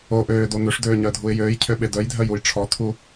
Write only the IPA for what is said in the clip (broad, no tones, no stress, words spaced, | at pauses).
o ʔøːdo n̪øʂdøːɲœdʱuɪ̯ jøːjcʰøɓe dœjdʱœjuj ʈ͡ʂʰɔt̪ʰu